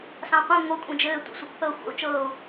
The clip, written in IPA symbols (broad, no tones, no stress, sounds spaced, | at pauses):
s ɑ̃ qʷ ĩ ŋʷ ɤ kʷʼ ĩ d͡ʒ ɘː tʷ ɛ̰ sʷ i kʷ θ ɤ xʷ a̰ u̯ t͡ʃ ɤː u̯